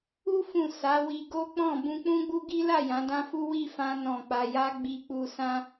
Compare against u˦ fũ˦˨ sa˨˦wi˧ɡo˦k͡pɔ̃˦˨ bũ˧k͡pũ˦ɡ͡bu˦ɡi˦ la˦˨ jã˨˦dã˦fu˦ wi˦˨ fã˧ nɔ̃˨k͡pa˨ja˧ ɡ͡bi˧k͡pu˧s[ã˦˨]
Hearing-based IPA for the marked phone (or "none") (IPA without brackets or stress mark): ã˦